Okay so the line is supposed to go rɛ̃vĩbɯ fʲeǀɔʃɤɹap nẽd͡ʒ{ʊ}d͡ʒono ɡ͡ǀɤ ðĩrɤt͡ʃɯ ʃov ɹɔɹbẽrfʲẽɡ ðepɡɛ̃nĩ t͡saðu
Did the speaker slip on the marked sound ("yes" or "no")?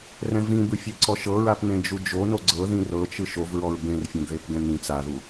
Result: yes